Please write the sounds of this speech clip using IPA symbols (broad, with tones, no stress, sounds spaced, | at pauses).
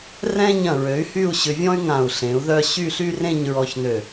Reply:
r ɛ̃˥ ɲ ɐ̃˧˩ ɹ ø˩˧ y̯ h y˥˧ u̯ ɕ ʏ˧ vʲ ɔ̃˥ y̯ ŋ ã˧˩ u̯ ɬ ẽ˩˧ u̯ ð œ˥˧ ɕ y˥˧ ɬ y˥ r ẽ˥˧ ɲ ɹ ɔ˧ ç n ø˧˩